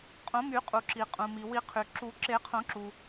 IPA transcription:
qʼ õ˨˩˦ m y˨˩˦ qʼ u˩ ǁ i˩ qʼ ũ˩ m i˩ w i˨˩˦ qʰ y˩ ǁ u˨˩˦ ǁ e˨˩˦ qʰ õ˨˩˦ ǁ u˩

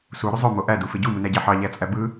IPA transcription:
s u ɾ y zˤ ø m o ʔ æ d u f e ɟ u m ɯ n æ ɟ æ ħ ɑ ʎ æ t͡sʼ æ b ɯ

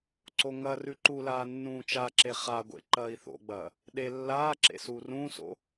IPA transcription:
ǀ o ŋ ɐ r ʉ ǃ u l aː nː ũː t͡ʃ a ǁ e χ a ɡʷ ḛ ǃ ɐː i̯ θ o̰ ɡ͡b ɐ | ɗ e lː aː ǁ ḛ s uː r ũː s o̰

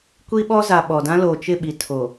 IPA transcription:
kʷ i˦ ɓ ɔ˦ z a˨ ɓ ɔ˨ d ã˦ l o˨ t͡ʃ ɪ˦˨ ɓ i˨ tʰ o˨

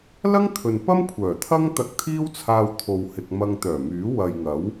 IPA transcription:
l ɐ˥ ŋ t̪ʰ ɵ˨ n p ɐ˥ m kʷʰ œː˨˩ t̪ʰ ɐ˥ ŋ t̪ ɐ˧ k̚ t̪ʰ iː˥ w t͡sʰ aː˧ w t̪ʰ o˨ w h ɪ˨ k̚ m ɐ˧ ŋ t̪ œː˨˩ m yː˨˥ w ɐ˨ j ŋ ɐ˨˥ w

